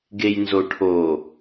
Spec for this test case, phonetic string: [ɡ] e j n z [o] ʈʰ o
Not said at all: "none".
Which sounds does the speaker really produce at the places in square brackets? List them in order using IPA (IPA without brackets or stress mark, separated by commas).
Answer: ɡ, o